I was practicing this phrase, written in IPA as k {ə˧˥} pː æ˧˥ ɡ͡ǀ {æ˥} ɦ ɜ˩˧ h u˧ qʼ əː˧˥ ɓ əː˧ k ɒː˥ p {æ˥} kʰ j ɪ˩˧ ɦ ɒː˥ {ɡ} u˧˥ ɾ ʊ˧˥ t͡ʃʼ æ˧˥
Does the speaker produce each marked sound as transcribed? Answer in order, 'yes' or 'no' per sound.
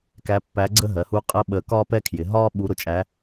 no, no, no, no

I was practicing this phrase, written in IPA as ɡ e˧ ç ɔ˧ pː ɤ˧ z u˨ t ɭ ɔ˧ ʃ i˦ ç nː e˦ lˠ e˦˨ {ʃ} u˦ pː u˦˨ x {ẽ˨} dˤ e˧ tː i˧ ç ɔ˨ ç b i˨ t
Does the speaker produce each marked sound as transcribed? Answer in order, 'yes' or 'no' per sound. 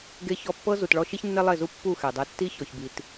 no, no

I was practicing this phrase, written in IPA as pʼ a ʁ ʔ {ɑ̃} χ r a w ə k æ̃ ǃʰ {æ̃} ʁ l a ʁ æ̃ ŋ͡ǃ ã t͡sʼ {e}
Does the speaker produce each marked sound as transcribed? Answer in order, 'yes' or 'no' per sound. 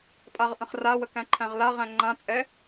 no, yes, no

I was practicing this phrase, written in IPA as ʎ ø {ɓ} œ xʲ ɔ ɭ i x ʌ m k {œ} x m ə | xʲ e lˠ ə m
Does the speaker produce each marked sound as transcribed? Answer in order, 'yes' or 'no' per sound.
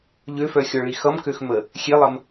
no, no

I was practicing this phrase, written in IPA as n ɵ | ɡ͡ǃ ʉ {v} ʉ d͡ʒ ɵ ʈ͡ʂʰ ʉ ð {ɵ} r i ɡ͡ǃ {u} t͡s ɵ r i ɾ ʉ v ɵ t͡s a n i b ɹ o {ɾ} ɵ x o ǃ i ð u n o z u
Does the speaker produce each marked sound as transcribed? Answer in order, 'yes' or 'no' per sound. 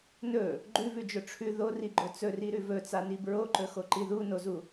yes, no, no, no

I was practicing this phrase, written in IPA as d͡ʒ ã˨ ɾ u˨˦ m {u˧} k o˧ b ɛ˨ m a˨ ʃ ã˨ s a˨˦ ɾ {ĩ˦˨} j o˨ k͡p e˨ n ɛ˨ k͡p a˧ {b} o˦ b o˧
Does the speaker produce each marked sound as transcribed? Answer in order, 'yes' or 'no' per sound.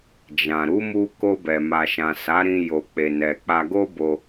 yes, no, no

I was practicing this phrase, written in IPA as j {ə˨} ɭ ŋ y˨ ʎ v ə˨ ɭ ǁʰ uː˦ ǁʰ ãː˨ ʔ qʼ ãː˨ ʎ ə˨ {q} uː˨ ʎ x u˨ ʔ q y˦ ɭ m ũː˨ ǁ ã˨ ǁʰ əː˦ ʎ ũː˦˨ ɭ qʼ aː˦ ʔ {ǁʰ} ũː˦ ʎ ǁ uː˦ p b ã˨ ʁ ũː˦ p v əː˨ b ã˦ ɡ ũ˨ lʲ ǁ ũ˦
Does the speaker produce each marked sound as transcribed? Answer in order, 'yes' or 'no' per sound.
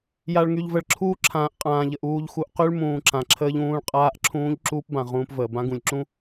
no, no, yes

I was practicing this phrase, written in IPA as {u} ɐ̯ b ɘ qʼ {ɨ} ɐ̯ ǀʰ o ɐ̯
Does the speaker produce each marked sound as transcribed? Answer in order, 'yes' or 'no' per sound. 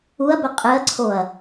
yes, yes

